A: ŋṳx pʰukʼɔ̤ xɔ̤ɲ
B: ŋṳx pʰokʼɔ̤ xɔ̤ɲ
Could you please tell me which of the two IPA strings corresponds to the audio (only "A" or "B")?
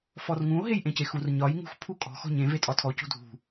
A